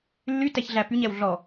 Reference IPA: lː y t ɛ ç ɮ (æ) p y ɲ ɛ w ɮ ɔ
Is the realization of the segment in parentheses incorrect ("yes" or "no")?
no